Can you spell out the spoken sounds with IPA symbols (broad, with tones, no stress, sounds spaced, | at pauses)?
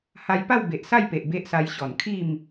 h a˧ j p a˥˧ w b e˨ ʔ s a˥˧ j p e˨ ʔ b e˦ ʔ s a˧ j ɕ ɔ˨˩ n kʰ i˥˧ m